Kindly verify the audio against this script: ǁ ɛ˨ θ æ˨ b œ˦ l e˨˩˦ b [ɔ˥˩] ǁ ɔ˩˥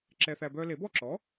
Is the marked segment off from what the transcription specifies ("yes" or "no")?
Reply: no